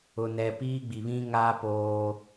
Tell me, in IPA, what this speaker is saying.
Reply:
ʊ˨ n ɛ˨ p iː˦ ɡ͡b i˨ β ĩ˦ ŋ aː˦ p oː˦

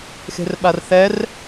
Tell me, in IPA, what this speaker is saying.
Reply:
x e̤ r ɓ a r θ ɛ r

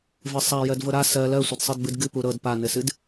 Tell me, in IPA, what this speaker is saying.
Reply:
v ɘ sˤ a j ɜ d v ɤ ɾ a s ɜ l ɜ sʷ ə d sˤ ɨ d b ɨ d ɡ ɨ p u ɾ ɤ d p a n ɘ s ɨ d

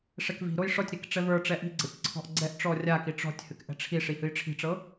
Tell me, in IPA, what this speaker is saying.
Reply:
ʂ ɛ k v i̤ ɾ o j ʂ ɔ tʲ ɾ i k ʈ͡ʂ ɛ v ə˞ ʈ͡ʂ ɛ ʔ i̤ ɡ͡ǀ ɤ tʲ ǀʰ ɔ̤ ʔ ɡ͡ǀ ɛ ʔ ʈ͡ʂ ɔ rʲ a k i ʈ͡ʂ ɔ̤ tʲ h ɨ k ʔ ɛ̤ ʈ͡ʂʰ i ʂ i h ɨ j ʈ͡ʂʰ i̤ ʈ͡ʂ ɤ

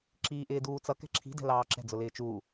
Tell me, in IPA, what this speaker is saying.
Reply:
ǁ iː ʔ ɪː d uː t͡s ʌ k ɛ̤ ǁʰ i̤ d ɛ̤ l ɑː ǁ ɛ̤ d͡z ʊ l ɪː t͡ʃ uː

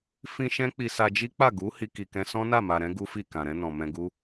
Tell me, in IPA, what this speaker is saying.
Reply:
f ĩ˧ ʃ ɛ̃˦ k͡p i˧ s a˧ d͡ʒ i˦ k͡p a˦˨ ɡ u˨˦ h i˧ k i˨ k ɛ̃˧ s ɔ̃˦ n a˦˨ m a˨ ɾ ɛ̃˨˦ ɡ u˦ f i˦˨ k ã˨ ɾ ɛ̃˧ n ɔ̃˨ m ɛ̃˧ ɡ u˦

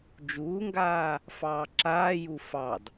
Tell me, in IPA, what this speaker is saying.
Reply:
d͡ʒ uː ŋ ɡ aː | f ɑː ǁ aː j u f ɑ d

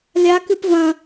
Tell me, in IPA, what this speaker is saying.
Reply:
lʲ a k ɨ p v ɐ̃

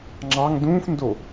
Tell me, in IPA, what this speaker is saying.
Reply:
ŋ͡ǁ ɑ ŋ d ũː f n d o

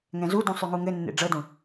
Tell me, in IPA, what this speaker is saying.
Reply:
ŋ ɛ̃ z u d ũ sˤ y ŋ u ŋ ɘ nː ḛ ɖ͡ʐ ɤ d ũ

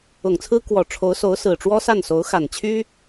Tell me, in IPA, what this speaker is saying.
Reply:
ʊ˨˩ ŋ t͡sʰ ɹ̩˥ k w ɔ˨˩ ʈ͡ʂʰ o˧˥ ʊ̯ s o˧˥ ʊ̯ s ɹ̩˨˩ ʈ͡ʂ w ɔ˥ s a˥˩ n s o˧˥ ʊ̯ x a˨˩ n t͡ɕʰ y˥

